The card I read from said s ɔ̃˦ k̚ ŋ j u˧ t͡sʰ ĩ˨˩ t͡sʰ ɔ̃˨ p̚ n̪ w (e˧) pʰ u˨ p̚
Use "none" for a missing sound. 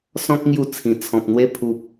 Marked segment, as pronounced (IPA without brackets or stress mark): e˦